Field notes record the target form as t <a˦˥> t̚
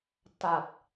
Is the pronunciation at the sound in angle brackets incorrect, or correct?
incorrect